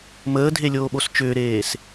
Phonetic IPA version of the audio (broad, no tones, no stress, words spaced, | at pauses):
məːdʱelʲoːɓos t͡ʃʏːɾeːs